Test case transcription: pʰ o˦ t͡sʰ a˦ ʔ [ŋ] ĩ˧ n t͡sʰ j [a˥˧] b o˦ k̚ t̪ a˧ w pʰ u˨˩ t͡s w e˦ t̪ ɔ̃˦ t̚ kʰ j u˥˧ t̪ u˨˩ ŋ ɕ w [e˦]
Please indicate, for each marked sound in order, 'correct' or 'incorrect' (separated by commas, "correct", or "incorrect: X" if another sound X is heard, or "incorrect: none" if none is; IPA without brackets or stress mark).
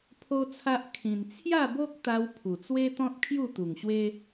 incorrect: kʰ, correct, correct